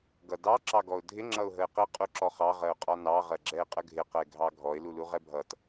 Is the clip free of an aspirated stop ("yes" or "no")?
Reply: yes